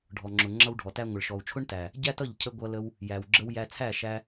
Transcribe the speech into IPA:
ɖʱ ɔ˨ ŋ͡ǁ ʊ˨ ŋ͡ǁ ʌ˧ w ɖʱ ɔ˨ t æ˧ ŋʷ ɪ˨ ɭ ʃ ɔ˨ u̯ t͡ʃʰ ʊ˦ ɳ t æ˨ | ɟ æ˦ t ʌ˦˨ ʎ cʰ ə˧ ɡʷ ʌ˧ l ə˧ w | j æ˨ w ɡ͡ǁ ə˧ w j æ˧ t͡sʰ æ˦˨ ʃ æ˧

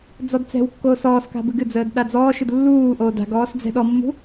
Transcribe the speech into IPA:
d͡z ɔ d t͡s ɛ̤ w kː oː s ɔː s k a̤ b ɨ ɡ ɨ d͡z əː d ɗ a d͡z ɔː ʃ ɨ d lː uː ʔ oː d a̤ ɡ ɔː s d͡z ɛ̤ ɗ ɔ mː ṳ

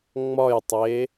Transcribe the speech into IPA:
ŋ͡m ɒ j tˤ e

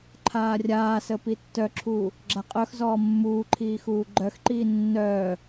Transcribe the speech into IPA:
ǃʰ aː rʲ aː s ə p i tː œ ǁʰ uː | ɡ͡ǁ a qʼ œ x z ɔː mː uː ǃʰ iː x uː ɡ͡ǃ œ x ǃ iː nː œː

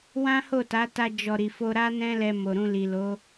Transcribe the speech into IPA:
w ã˦ h o˦˨ t a˨˦ t a˧ d͡ʒ ɔ˧ ɾ i˨ f o˧ ɾ a˦ n ɛ̃˦ l ɛ˧ m o˨ ɾ ũ˧ l i˨ l o˨˦

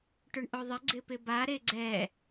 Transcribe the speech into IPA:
ʈ ʊ ɳ ʔ o ðˤ ɪ ɡ͡ǀ ɪ p ɪ b a ɾ e ɡ͡ǀ ɛ

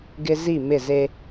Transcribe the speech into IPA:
ɡ ɪ˦ z i˦˨ m ɪ˦˨ z e˦

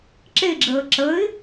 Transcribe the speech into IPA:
ǁ e ɡ͡ǁ əː ǁ ə ɪ̯

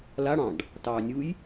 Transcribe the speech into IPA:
l a ɽ ɑ̃ ɖ | t ɑː nʲ u j

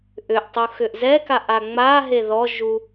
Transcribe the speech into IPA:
ʔ ʏ ʔ tˤ u x ʏ ʔ z ɛ k a ʔ a ŋ͡m a ɦ e ð ɔ ʒ u

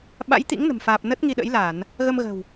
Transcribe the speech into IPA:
ɓ a̰˧˥ j t̪ ḭ˧˥ ŋ n ə̤˨˩ m f aː˨˩ p̚ n ə˦˥ t̚ ŋ i˧ ɗ ə̰˧˥ j l a˧˩˨ n | ɣ ə˧ m ɣ ə̤˨˩ w

